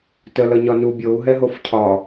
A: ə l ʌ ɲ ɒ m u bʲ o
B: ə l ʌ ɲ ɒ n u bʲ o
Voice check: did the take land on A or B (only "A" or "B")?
B